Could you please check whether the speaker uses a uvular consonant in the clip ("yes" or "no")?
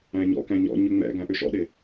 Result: no